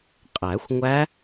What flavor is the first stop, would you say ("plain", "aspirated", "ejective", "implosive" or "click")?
ejective